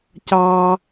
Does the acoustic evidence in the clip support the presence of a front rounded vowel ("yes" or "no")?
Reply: no